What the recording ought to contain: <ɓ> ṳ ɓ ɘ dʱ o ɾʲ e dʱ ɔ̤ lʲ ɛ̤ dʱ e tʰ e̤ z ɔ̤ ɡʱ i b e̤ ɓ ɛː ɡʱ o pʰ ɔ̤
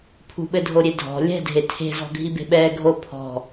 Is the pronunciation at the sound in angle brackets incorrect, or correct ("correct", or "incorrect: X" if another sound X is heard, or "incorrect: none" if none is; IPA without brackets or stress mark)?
incorrect: pʰ